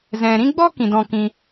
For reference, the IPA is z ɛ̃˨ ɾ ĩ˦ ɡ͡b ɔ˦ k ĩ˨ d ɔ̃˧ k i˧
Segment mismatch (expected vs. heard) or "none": i˧ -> ĩ˧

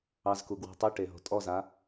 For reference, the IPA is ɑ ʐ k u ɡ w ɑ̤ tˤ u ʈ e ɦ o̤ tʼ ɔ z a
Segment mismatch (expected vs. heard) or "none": ʐ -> z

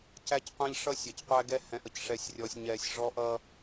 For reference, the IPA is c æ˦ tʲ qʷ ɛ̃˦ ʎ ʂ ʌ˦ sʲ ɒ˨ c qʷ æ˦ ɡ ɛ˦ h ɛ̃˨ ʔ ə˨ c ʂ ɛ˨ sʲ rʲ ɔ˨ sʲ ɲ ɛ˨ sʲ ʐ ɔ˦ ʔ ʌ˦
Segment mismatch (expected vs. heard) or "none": tʲ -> c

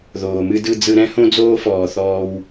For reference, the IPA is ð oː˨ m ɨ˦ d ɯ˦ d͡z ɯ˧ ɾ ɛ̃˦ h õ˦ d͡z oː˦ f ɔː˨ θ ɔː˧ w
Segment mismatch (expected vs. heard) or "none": none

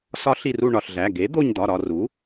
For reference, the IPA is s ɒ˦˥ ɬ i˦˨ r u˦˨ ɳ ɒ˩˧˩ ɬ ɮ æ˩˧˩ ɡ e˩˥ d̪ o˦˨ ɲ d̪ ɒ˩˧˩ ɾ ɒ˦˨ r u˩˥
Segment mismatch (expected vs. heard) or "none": none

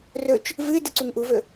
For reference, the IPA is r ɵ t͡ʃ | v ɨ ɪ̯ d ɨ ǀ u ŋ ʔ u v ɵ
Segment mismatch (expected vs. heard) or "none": none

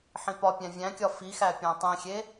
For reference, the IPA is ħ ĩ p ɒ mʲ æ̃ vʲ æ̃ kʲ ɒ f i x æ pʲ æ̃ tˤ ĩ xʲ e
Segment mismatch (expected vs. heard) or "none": mʲ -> pʲ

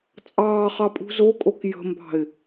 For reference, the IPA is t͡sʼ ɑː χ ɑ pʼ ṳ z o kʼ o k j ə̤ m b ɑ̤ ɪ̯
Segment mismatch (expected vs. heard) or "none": none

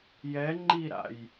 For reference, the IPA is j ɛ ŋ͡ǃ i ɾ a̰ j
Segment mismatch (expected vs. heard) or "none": none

